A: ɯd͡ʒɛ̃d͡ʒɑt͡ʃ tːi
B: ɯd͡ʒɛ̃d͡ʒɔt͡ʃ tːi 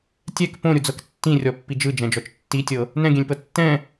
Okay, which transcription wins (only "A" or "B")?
B